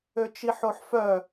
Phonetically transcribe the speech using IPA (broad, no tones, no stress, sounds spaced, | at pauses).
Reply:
ø t͡ʃ i ħ o ħ f œ